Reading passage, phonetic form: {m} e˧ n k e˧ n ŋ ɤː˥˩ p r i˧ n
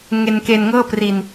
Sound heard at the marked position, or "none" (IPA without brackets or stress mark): ŋ